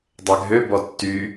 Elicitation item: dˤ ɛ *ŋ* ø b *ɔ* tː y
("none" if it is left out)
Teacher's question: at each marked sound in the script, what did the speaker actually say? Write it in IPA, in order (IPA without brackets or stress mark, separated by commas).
ɡʱ, ɔ